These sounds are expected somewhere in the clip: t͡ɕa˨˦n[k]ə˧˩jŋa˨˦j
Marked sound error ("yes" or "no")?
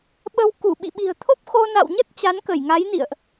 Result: no